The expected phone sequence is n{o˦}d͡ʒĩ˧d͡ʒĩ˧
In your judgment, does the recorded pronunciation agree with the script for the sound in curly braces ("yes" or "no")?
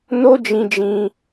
yes